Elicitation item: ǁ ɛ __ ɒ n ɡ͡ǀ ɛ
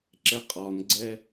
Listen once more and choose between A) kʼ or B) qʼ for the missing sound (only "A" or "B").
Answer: B